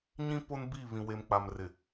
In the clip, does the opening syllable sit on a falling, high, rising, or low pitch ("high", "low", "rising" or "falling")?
high